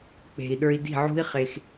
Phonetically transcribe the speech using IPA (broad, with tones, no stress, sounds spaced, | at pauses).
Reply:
k͡p e̤˨ i̯ ɗ ə˞˧ i̯ d i̤˦˨ ʕ ṳ˦ i̯ χ e˧ x